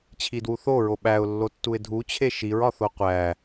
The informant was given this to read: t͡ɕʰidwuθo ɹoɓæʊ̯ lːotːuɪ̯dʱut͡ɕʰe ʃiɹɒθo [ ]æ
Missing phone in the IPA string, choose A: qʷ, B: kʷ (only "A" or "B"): A